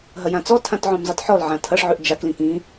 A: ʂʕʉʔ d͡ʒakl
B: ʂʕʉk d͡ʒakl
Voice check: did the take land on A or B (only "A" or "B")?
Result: A